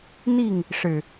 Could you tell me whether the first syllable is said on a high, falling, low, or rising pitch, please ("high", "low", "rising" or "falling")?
falling